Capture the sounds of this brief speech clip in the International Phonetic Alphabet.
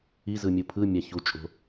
i z ɯ mʲ u pʰ ɯ mʲ a ç u t͡ʃʼ o̤

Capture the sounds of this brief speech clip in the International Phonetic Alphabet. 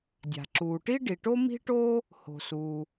dʲ a̤˩ ǁ uː˩ ʈ i˥ ɖ i˩ ʈ o˥ m i̤˥ ʈ oː˥ | h o̤˩ s uː˩

